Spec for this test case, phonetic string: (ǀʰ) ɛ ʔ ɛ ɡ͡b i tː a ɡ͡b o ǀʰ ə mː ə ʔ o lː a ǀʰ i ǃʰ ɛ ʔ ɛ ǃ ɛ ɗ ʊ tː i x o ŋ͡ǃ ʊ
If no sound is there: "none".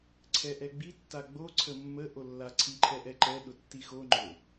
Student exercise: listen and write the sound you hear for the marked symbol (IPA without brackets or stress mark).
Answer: ǀʰ